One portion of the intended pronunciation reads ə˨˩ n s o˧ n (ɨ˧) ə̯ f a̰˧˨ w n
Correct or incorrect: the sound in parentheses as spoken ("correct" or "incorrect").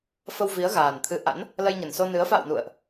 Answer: incorrect